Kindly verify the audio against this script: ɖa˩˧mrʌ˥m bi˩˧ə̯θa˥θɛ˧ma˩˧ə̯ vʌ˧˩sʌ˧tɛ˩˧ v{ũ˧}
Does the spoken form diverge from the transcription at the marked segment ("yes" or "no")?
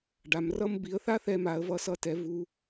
yes